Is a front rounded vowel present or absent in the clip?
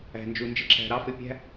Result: absent